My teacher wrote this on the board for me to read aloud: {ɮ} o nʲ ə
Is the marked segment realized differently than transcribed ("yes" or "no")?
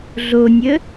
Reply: no